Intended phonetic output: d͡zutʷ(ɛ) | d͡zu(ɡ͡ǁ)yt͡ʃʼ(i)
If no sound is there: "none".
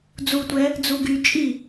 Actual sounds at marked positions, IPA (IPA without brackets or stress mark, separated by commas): ɛ, ɡ, i